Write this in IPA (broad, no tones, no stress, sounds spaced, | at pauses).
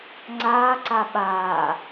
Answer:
ŋ͡ǀ aː ǀ a ɓ aː